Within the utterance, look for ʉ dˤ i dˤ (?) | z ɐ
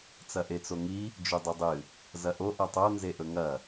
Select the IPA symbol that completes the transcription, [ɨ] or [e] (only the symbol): ɨ